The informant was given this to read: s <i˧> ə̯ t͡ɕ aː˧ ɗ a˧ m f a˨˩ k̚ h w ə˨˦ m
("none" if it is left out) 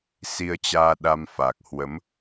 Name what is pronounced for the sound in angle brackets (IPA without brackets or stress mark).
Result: i˧